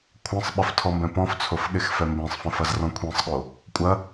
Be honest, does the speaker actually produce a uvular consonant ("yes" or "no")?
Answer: no